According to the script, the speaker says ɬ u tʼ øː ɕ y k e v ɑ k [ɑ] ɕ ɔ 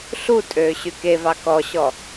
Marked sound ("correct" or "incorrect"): incorrect